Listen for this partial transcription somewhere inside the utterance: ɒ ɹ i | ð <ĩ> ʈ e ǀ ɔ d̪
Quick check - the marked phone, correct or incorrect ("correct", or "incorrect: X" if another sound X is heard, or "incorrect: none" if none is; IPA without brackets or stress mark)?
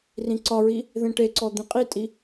incorrect: ẽ